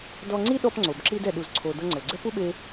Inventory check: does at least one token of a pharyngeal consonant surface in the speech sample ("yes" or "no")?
no